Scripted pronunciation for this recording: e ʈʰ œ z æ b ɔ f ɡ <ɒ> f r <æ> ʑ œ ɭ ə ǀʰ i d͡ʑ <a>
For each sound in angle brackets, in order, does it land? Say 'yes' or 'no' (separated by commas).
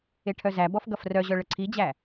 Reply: no, no, no